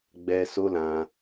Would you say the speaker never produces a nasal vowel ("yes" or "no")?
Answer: no